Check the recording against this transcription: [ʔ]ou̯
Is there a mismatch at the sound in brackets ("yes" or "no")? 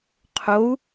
yes